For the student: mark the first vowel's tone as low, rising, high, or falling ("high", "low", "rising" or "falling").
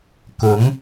rising